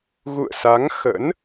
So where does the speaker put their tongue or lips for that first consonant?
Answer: velum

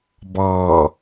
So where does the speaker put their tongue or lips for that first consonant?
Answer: lips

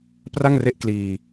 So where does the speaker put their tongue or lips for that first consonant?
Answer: lips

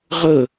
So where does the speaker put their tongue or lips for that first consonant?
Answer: uvula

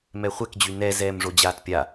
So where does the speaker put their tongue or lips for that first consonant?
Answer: lips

